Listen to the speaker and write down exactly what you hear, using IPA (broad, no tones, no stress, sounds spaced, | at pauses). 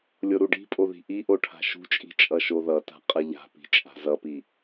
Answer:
lʲ o ɾ u ɖ i̤ pʼ o ð i̤ ʔ i ʔ o ʈʰ a̤ ʃ ṳ t͡ʃʼ i̤ t͡ʃʼ ʌ ʃ o ð ʌ t a̤ qʼ ʌ ʎ a̤ p i̤ t͡ʃʼ a̤ z ʌ p i